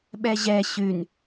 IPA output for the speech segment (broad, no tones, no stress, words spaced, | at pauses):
ɓɛʑɛ ɕʉn